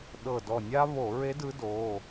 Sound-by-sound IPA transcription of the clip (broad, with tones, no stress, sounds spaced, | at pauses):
ɗ ɤ˧˩ d ɔ˧˩ nʲ a˥ β o˧˩˧ ɹ e˧˥ d ɯ˧˥ d o˩˧˩